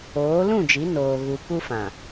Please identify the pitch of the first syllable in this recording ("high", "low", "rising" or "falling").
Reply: rising